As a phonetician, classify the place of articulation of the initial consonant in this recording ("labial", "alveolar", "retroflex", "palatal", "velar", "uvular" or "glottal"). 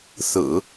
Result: alveolar